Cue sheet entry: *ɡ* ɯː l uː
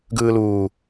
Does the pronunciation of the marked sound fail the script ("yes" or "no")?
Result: no